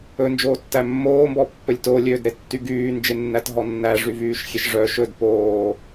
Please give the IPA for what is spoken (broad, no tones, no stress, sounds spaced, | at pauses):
ɵ n d͡ʒ oː tː æ mː oː m b ɔ pː ɵ lʲ t o lʲ øː d ɾ e tː y ɡ yː n d͡ʒ e nː æ t ɦ ɔ nː æ ʐ y v yː ʃ xʲ e ʃ ʐ œ ʃ ɵ d p oː